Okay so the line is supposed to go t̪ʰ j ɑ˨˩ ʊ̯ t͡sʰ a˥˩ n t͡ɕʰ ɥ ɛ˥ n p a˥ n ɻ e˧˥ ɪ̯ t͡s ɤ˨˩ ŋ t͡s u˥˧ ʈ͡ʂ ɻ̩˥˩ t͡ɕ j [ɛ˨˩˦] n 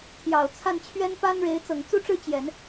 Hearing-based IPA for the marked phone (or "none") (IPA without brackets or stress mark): ɛ˨˩˦